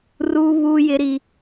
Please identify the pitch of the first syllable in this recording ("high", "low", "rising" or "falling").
high